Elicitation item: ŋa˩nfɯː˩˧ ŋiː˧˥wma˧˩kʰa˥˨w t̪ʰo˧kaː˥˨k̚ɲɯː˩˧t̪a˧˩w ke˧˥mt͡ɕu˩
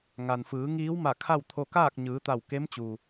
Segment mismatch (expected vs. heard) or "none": none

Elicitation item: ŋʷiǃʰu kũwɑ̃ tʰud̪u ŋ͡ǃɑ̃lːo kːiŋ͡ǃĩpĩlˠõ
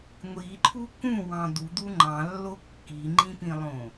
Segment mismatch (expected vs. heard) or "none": tʰ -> d̪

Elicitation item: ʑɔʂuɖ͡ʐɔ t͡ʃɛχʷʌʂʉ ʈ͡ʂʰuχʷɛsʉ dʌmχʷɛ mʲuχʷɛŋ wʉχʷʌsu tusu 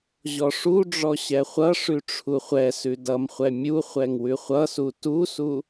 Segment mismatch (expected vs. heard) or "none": t͡ʃ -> ɕ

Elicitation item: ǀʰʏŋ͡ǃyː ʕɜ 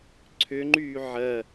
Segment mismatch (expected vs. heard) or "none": none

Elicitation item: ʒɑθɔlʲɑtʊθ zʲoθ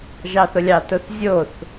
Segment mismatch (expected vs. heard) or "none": ɔ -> ʊ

